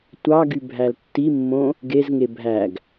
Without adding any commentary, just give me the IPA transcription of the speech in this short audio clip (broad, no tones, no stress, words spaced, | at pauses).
tʷɑɡy bʱæltːimːõ | ɡezŋe bʱæɡ